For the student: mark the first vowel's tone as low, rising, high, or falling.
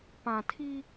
low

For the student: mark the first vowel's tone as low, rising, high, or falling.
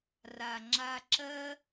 low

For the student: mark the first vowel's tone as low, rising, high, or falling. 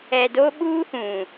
low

